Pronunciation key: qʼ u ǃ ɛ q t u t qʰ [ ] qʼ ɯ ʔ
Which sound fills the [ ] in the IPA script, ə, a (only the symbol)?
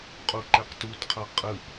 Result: a